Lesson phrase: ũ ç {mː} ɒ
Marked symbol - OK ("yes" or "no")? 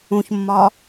yes